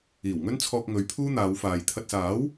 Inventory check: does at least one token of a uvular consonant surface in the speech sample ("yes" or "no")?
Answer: no